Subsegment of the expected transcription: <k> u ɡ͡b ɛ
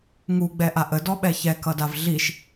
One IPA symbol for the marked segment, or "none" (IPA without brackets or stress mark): ŋ